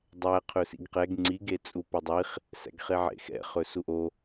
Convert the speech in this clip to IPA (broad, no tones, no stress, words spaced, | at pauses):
dˤæ qʰɵsḭɡqɛɡ ŋ͡ǀiɡet͡sʼu pɛdˤiχ | sæ̰ɡχeʕḛxɛ̰ χɵsuʔo